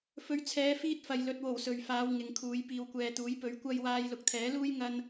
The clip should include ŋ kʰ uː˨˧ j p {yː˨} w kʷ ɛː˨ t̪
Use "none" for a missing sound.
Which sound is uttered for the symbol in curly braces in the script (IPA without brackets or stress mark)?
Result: iː˨